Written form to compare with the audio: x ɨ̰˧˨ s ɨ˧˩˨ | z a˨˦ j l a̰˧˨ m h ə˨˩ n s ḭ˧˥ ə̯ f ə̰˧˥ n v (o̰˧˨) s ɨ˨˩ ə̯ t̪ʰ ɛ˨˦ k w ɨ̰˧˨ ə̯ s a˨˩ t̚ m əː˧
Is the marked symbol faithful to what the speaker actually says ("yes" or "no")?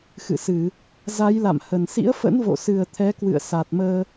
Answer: yes